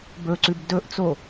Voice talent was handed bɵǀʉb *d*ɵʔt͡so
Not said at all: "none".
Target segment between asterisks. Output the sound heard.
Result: d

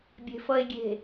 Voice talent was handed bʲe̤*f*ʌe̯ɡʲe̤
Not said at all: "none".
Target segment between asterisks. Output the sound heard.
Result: f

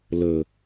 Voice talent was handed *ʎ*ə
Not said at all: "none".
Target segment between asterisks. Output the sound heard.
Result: l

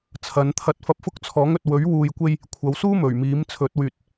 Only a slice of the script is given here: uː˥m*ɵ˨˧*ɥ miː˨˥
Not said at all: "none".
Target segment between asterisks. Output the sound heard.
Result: ɵ˨˩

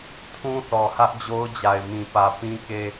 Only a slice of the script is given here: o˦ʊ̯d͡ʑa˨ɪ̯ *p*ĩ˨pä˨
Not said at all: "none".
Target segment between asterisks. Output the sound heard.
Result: m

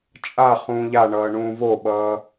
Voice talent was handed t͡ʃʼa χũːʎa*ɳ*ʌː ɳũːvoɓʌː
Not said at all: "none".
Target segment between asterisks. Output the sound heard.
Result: ɳ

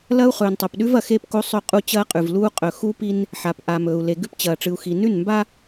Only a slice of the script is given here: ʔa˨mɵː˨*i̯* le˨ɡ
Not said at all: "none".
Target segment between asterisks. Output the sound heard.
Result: u̯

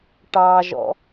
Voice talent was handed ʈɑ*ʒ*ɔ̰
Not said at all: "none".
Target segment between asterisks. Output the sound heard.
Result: ʒ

